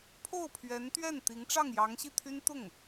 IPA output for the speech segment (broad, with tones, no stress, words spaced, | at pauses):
pʰo˥˩ʊ̯pʰɥɛ˧˥nt̪ɥɛ˥˩nt̪i˧˥ŋ ʈ͡ʂɑ˥˩ŋjɑ˧˥ŋɕi˥˩t̪ʰy˥n t̪ʊ˥˩ŋ